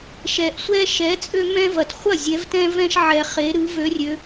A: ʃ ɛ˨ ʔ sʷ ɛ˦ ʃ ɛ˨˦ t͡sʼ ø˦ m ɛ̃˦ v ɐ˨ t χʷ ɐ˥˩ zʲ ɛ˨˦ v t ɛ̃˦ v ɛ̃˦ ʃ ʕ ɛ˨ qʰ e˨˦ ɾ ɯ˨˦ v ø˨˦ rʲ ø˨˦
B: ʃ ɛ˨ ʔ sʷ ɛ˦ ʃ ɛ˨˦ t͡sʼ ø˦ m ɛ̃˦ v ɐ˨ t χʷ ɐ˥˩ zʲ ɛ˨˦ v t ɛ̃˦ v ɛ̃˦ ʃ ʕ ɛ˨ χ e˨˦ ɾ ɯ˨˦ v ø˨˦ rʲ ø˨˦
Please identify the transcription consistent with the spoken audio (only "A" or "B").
B